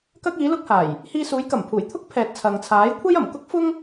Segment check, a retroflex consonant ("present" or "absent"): absent